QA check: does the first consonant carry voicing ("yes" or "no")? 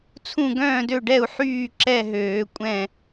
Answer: no